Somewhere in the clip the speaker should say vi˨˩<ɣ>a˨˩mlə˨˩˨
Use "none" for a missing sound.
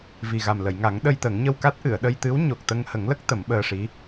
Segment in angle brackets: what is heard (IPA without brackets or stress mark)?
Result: ɣ